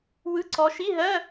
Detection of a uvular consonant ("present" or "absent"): absent